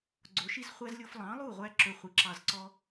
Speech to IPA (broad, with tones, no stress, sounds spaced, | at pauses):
ɡ͡ǀ o˩˥ ʃ i˥ z χʷ æ˥ z lʲ o˧ f lˠ ɑ̃˩˥ lˠ u˥˩ ʁʷ æ˥ ǁ ɵ˧ χʷ i˩ ǁ ɑ˧ z ǀ ɔ˥